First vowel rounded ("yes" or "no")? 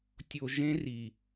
yes